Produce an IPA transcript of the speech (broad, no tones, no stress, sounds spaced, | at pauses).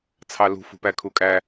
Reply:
t͡sʰ ɑ l ṳ f ṳ p æ kʰ u kʼ æ